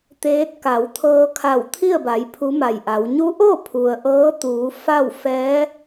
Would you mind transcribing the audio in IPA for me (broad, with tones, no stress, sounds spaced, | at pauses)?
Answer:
t̪ eː˧˥ t̚ k a˩˧ w t̪ʰ ɤː˧ kʰ a˧˩ w t̪ʰ i˥˨ ə̯ b a˩˧ j pʰ u˧˥ m a˧˩ j ʔ a˩˧ w ɲ u˧˥ ʔ o˥˨ pʰ u˩ ə̯ ʔ ɤː˧˥ t̪ uː˩˧ f a˥˨ w f ɛː˧˥